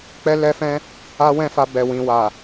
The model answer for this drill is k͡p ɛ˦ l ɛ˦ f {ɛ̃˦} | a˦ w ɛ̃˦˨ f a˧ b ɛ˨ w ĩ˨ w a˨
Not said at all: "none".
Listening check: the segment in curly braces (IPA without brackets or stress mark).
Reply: ɛ̃˦